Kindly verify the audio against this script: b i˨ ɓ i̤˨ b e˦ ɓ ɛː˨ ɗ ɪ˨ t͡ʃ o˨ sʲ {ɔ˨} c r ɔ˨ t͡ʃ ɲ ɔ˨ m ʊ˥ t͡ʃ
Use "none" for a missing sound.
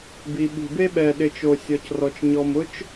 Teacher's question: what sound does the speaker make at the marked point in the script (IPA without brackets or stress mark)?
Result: ɔ˨